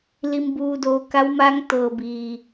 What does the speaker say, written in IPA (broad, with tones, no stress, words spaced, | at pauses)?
li˩mbuː˩doː˩ ka˧˥wmaː˧˥ŋ t̪ɤː˩biː˩